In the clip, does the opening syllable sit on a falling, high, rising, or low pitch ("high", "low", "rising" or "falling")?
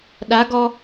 rising